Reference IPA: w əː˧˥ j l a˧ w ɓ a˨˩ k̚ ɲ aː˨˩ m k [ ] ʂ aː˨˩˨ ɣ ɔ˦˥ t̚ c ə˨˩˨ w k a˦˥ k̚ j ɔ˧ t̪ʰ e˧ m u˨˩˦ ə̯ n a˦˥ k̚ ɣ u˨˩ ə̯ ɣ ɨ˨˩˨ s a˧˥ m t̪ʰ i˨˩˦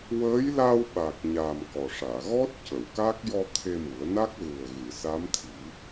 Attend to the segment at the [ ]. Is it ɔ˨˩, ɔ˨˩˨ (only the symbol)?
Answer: ɔ˨˩